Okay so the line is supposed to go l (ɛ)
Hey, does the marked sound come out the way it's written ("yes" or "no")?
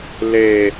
no